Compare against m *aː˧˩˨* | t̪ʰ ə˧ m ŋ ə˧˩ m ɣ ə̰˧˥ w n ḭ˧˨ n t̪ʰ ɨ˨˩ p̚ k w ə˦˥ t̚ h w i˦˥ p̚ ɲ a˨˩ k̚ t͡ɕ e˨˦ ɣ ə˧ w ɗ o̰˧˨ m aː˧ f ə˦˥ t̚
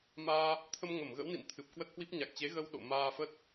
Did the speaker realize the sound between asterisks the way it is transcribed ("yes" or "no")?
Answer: no